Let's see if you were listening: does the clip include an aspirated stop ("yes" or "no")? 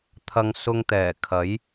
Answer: yes